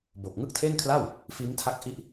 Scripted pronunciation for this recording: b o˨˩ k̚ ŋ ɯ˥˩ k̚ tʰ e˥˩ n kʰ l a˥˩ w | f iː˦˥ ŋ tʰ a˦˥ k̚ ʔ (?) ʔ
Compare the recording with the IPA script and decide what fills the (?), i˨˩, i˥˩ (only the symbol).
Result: i˥˩